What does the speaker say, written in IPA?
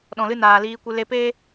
ɗ ɔ̃˨ l ɨ˧ n aː˨ l iː˧ kʷ ɨ˧ l e˧ p eː˦

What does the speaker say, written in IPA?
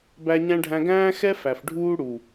b æ˦ ɲ æ̃˦ ɖʱ æ̃˦ ɡ æ̃ː˦ x ɛ˦ f æ˨ f ɖʱ uː˦ ɽ u˨

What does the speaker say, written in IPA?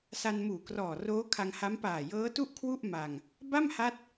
s a˧ n m uː˨˩ k r ɔː˨˩ r oː˦˥ kʰ a˧ ŋ h a˦˥ m p aː˨˩ j ɤː˦˥ t u˥˩ ʔ kʰ w u˥˩ ʔ m a˧ ŋ | b a˥˩ m h a˦˥ t̚

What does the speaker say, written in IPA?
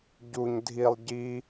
ɟ u ɲ dʱ i lˠ ɟ i

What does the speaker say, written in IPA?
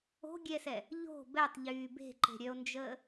o̤ ɡʲ ɛ s ɛ | ʎ o̤ b ɛ tˤ ʎ yː b e̤ ǃ e̤ ɾʲ œ o̯ n d͡ʒ əː

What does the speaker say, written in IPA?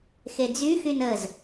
x e d͡z y x y n ə z

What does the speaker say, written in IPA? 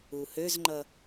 u h ø z ŋ͡ǃ ʌ

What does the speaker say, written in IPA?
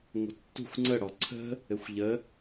ŋʷ ə̤ tː ṳ xʷ ŋ͡ǀ ə ɽ ɔ ǀʰ ə̤ | ɘ xʷ ʎ ə

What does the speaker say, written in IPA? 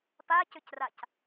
p a c ʏ c r a c

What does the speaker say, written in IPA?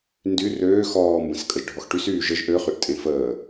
n d y r øː x ɔː m b ə̃ s kʼ ə ʒ ɖʱ ɔ x ʈ y s yː ʒ ə ʒ ʔ ø χ y ʔ tʼ ẽ f əː

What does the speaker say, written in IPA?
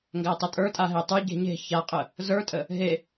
ŋ ɡ æ tˤ ə tʼ ə˞ tʼ a ɦ e tˤ ə˞ ɟ e̤ ɲ e̤ ç a qʼ ə | z ə˞ tʼ ə | ɦ e

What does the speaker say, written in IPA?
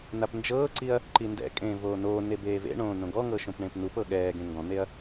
n a p n d͡ʒ ɤː ǀ i ɐ̯ | ǃ i n d ɛ̰ kʼ ẽː v oː n oː n e b eː v ḛ ɳ õː n õ ɡ ɔ ŋ ɤ ʃ õ p ɳ ẽ p n u p ɤ ɠ ɛː ɡ ẽ ŋ ɡ ɔ̃ n̪ e ɐ̯

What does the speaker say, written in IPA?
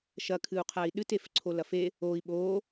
ʃ ɐ kʰ ɨ u̯ qʰ a i̯ ɗ ɨ t e f ǀʰ o l ɐ f e | oː i̯ ɓ oː

